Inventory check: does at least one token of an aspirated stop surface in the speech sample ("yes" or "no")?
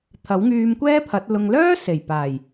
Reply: yes